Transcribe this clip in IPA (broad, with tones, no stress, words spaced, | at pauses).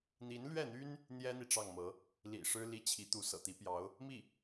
n̪i˧˥nlɥɛ˥˩n̪y˥n | n̪jɛ˥n̪i˨ ʈ͡ʂɑ˥˩ŋmɤ˧˥ | lḭ˨˩ ʂɻ̩˥ li˥˩t͡ɕʰi˧˥ t̪u˧˥sɤ̰˨˩t̪i˧˥pjɑ˧˥ʊ̯ | mi˥˩